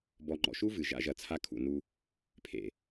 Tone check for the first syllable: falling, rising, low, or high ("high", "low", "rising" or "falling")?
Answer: low